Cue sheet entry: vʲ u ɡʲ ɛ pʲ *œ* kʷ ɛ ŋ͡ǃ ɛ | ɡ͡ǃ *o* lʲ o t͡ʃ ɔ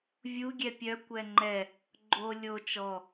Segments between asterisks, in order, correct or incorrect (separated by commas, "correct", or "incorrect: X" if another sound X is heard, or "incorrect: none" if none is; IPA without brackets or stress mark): correct, correct